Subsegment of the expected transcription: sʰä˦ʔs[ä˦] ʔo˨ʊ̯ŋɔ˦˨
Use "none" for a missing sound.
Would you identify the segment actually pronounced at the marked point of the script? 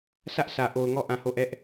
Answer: ä˨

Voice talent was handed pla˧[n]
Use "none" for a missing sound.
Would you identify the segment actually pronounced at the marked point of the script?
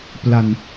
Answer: n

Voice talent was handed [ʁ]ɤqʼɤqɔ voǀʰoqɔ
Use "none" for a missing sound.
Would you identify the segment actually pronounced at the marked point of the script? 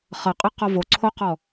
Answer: χ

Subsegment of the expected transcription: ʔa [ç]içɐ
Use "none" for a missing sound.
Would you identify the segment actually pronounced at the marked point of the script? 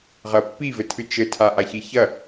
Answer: ç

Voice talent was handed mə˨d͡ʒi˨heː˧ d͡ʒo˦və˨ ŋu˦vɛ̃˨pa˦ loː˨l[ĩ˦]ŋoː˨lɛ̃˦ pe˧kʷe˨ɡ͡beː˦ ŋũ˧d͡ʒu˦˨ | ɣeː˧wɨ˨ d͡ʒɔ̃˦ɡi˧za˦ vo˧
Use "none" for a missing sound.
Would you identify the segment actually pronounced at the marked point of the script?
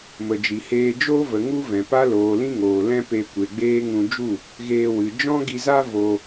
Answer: ĩ˦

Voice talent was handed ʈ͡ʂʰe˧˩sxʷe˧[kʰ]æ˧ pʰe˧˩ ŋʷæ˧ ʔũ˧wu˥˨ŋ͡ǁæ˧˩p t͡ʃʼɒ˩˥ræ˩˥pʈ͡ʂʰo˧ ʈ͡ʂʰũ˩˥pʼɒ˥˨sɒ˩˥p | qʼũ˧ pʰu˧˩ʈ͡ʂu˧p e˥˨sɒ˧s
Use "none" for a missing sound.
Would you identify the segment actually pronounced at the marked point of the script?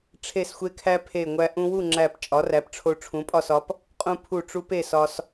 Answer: kʰ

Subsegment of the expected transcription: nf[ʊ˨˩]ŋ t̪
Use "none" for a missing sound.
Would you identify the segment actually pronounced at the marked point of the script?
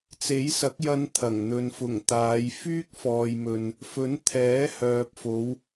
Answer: ʊ˨˩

